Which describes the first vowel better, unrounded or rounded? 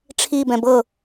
unrounded